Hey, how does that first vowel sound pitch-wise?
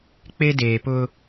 high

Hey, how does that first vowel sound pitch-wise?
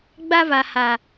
high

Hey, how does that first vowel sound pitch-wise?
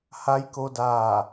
rising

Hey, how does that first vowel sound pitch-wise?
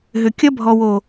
low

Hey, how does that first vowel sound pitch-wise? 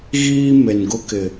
high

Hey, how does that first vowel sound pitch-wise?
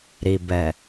low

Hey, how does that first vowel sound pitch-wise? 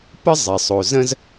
high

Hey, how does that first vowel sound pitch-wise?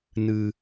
high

